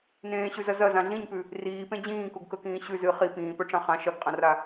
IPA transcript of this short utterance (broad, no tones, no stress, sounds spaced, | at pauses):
n ẽː ɕ ʉ z ɐ z ɐ z ã ɮ ĩ ɲ p ʉ | r iː p ẽ d͡ʑ ĩː k u ɡ k ɵ k ĩː ɕ ʉ z ɨ χ i p ĩː p ɵ ʈ͡ʂ ã χ ã ʃ ɐ ɡ qʼ ɐ̃ r a